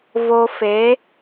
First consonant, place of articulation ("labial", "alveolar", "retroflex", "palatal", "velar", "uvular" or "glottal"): labial